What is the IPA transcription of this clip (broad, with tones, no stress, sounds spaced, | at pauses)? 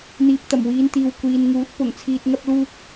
n̪ iː˨˥ p̚ t̪ ɐ˨˩ m w iː˨˧ n t̪ iː˨ w kʷ iː˨ n ŋ uː˨˥ t̚ p ʊ˨˩ ŋ t͡sʰ iː˨ t̚ ŋ ɐ˧ p̚ l uː˧ k̚